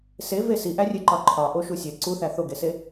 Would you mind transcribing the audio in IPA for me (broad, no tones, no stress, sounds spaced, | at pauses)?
s e v e s i ʔ æ rʲ e ǃ ɒ ǃʰ ɒ ʔ o ʃ u sʲ e ǀ u θ æ θ o ɡ e s e